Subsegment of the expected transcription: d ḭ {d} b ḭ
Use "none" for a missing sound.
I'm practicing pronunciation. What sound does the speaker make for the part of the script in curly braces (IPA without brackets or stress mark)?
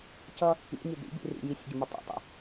none